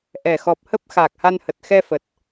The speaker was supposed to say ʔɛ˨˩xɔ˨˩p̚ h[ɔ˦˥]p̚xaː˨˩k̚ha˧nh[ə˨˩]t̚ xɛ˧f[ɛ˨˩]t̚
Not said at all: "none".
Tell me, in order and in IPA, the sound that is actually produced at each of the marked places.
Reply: ə˦˥, ə˨˩, ə˨˩

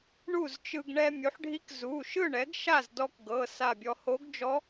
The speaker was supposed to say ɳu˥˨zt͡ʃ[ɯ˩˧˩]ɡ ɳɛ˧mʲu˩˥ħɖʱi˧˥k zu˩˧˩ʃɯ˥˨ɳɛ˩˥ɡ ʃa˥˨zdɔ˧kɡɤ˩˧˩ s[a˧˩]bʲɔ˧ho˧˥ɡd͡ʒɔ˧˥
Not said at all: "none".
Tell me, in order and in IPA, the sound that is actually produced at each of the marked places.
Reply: ɯ˧, a˧˩

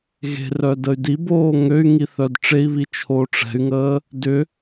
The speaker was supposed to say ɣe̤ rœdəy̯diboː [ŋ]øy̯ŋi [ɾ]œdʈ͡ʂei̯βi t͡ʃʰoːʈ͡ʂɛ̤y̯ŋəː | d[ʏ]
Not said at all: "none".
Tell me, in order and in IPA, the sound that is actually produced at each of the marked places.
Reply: ŋ, θ, ʏ

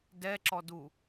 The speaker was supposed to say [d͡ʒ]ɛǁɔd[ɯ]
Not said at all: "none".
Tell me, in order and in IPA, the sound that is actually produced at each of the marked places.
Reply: d, u

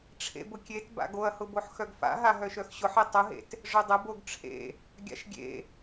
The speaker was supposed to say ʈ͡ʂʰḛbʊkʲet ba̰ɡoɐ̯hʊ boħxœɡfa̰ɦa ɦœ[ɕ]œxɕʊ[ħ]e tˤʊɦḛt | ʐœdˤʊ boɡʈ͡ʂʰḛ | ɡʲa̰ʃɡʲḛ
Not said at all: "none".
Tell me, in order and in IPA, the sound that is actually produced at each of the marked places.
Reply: ʃ, ħ

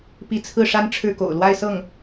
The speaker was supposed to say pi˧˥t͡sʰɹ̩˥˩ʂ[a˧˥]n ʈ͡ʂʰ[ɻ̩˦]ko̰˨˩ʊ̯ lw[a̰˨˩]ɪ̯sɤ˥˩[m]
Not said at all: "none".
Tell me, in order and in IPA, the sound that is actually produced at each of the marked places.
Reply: a˥, ɻ̩˥˩, a˥˧, ŋ

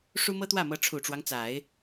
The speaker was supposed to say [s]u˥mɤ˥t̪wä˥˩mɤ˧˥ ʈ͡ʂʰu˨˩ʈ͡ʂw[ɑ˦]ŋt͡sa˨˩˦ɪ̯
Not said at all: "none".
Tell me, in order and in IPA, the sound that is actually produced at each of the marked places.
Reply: ʂ, ɑ˦

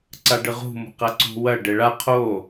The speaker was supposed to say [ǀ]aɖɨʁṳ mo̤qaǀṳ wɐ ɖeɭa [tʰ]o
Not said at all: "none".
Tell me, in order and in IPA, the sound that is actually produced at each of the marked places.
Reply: ǀ, qʰ

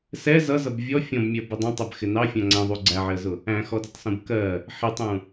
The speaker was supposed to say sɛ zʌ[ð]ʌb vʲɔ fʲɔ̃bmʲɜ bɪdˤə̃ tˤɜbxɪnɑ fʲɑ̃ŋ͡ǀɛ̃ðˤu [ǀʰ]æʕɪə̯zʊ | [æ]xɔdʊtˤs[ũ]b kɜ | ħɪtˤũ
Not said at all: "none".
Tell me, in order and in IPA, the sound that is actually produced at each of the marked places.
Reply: z, ɡ͡ǀ, æ̃, ũ

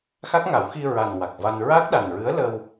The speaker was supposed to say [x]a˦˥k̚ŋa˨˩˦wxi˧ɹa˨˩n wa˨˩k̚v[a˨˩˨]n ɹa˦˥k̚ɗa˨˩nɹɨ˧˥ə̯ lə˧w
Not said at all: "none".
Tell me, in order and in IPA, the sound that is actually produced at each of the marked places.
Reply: x, a˧

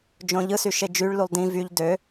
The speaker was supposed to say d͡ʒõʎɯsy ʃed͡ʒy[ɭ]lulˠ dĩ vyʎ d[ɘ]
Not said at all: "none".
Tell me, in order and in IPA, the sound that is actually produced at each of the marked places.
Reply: ɭ, ø

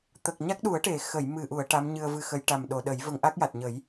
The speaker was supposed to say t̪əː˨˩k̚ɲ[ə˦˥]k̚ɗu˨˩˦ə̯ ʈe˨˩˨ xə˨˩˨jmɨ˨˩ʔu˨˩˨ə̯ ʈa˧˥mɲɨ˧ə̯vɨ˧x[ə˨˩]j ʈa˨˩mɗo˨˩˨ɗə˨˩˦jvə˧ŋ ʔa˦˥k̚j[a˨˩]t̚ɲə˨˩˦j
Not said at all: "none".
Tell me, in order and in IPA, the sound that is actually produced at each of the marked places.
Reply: a˦˥, ə˧˥, a˨˩

